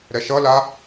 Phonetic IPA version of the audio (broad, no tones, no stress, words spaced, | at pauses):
ɾɛʃʌla